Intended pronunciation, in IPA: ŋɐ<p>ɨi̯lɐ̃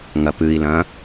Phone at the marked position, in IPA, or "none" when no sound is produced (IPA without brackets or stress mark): p